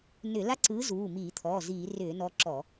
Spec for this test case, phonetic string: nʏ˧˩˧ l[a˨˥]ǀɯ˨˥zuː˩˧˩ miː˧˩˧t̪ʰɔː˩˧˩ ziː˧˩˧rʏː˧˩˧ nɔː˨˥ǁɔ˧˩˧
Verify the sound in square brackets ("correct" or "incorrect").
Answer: incorrect